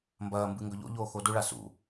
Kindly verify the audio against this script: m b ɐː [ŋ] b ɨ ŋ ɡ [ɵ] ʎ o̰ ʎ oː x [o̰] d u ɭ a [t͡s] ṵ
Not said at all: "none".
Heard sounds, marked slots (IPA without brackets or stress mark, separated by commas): m, ɵ, o, s